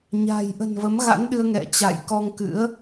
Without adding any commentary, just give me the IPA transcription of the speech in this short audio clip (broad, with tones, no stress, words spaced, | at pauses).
ɲa̤˨˩j ʔə̤˨˩nvə˨˦mɣa̰˧˥nɗɨ˧ə̯ ŋɛ̰˧˨t͡ɕa̰˧˨jkɔ˧ŋkɨ̰˧˥ə̯